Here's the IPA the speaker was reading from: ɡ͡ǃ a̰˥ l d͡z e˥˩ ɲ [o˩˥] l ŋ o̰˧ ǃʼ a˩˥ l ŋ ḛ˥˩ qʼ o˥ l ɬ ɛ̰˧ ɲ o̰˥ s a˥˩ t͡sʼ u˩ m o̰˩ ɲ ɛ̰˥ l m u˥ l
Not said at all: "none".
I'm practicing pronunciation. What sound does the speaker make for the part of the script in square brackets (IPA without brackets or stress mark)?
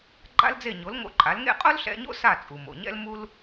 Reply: o˩˥